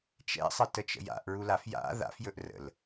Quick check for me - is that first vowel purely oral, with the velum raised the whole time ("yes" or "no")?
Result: yes